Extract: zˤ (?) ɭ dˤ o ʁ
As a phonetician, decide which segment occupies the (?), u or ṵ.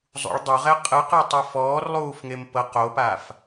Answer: ṵ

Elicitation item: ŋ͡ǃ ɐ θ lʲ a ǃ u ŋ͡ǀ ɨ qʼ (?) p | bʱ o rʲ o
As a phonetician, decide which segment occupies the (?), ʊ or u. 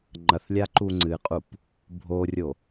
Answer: u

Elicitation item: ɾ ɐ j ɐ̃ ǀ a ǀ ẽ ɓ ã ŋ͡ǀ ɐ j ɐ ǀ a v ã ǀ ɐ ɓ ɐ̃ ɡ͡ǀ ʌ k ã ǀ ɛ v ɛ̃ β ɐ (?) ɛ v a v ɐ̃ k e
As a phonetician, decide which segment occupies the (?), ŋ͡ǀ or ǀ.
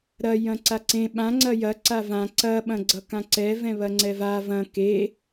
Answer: ŋ͡ǀ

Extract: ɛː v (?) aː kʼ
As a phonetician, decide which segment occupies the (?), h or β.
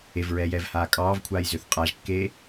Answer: h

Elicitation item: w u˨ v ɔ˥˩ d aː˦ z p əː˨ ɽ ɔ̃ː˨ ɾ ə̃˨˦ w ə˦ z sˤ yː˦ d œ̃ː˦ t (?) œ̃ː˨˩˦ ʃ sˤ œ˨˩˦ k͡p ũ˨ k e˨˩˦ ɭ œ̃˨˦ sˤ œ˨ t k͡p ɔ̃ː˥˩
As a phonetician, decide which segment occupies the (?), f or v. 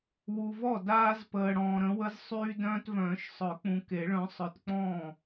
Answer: v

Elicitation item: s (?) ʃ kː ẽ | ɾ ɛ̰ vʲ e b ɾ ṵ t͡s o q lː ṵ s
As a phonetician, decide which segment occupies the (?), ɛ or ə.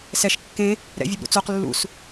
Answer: ɛ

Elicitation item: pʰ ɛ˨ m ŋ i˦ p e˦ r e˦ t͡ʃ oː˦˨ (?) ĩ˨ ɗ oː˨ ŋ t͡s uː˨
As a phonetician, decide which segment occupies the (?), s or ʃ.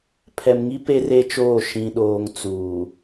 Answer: ʃ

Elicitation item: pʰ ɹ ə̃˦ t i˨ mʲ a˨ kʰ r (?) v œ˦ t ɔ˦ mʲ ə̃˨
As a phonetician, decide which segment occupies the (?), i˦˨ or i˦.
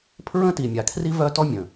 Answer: i˦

